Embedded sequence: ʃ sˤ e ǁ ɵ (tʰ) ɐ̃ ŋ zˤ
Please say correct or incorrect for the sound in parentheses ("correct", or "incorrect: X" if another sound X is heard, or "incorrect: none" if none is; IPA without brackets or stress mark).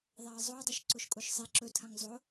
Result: correct